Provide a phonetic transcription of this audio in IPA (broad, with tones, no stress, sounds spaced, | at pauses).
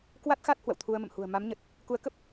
k w a˦˥ t̚ x a˦˥ t̚ h w ə̰˧˨ w t̪ʰ u˧ ə̯ m ə̰˧˨ m h ṳ˨˩ ə̯ m a˨˦ m ɲ ə˨˩ t̚ | k u˨˦ ə̯ k ə˦˥ p̚